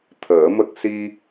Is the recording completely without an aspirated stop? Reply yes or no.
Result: no